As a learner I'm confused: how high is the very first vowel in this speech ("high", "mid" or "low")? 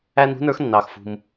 low